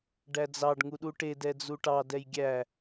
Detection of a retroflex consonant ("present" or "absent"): present